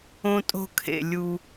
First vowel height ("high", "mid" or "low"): mid